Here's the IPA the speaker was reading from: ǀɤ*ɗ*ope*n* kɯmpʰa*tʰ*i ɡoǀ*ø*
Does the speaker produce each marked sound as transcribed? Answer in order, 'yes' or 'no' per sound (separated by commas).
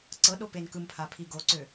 yes, yes, no, yes